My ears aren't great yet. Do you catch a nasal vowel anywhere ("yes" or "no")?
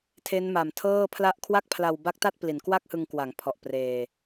no